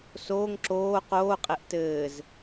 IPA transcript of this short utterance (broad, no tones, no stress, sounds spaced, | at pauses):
s oː ŋ ǁ oː q oː qʼ e ʔ t ɘː z